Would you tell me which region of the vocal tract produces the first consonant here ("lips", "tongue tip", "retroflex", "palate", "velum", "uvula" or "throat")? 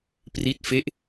lips